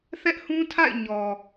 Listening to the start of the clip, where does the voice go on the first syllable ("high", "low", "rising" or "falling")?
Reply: high